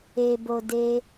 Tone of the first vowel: low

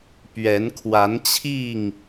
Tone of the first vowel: rising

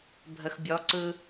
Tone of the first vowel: low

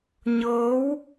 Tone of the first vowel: rising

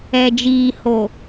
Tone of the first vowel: low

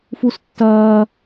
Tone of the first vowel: high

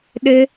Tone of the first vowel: high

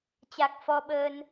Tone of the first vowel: low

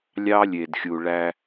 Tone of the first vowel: high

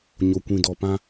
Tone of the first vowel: low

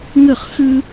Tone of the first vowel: falling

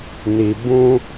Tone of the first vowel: low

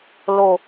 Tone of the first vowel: falling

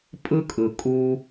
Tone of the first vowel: high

